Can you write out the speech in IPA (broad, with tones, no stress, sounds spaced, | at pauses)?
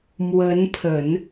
m w ə˧˥ n pʰ ə˨˩˦ n